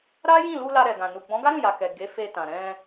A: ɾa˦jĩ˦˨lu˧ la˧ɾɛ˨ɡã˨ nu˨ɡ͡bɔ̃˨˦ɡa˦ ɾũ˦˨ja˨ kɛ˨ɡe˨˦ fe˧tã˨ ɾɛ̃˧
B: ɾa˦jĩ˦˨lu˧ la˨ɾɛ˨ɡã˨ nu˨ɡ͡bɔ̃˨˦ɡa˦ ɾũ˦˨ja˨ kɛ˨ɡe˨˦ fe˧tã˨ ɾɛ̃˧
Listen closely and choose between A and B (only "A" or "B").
A